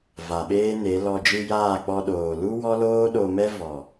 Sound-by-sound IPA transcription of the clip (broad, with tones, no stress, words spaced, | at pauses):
va˨ɓeː˦ne˨˦lɔ˧ d͡ʒɨ˧jaː˦˨k͡pɔ˧ ɗoː˨ lu˦wɔ˦ loː˦ɗo˧mɛ˦ vɔ˨